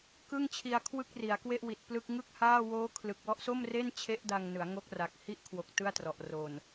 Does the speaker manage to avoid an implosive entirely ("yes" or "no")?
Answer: yes